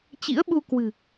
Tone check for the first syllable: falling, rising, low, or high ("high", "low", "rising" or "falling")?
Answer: rising